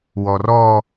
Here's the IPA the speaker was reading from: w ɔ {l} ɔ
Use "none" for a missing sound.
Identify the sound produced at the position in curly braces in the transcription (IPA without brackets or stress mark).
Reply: r